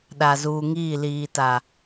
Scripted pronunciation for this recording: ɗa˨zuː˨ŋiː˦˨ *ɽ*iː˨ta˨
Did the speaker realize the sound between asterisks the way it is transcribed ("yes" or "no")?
no